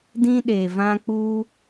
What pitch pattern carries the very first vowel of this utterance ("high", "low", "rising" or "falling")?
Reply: high